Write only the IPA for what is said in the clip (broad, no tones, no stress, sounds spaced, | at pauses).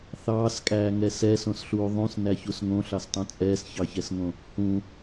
θ ɑː s kʼ æː ŋ ɛ s ɛ s õ s ɬ uː ðˤ ũ s n æ ç u s ŋ õ ɬ ɑ s tˤ õ t͡sʼ ɛː s ç ɑ ç ɛ s ŋ õ | h ũ